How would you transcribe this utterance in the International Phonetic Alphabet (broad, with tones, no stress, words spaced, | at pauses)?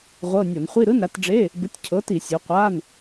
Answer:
ʁʷɤ˧˥˧ nʲo˧˩˧nχʷi˧˥˧ ɾɯ˧˥˧nɾa˨˥t ɖ͡ʐe˧˥˧ | bɯ˨˥tʲcʰɤ˨˥ti˧˩˧ sʲu˨˥ qʷa˧˥˧n